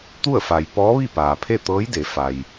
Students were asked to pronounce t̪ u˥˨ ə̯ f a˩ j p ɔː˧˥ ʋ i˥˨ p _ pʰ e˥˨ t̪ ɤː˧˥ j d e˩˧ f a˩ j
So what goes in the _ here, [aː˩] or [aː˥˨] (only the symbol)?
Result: aː˩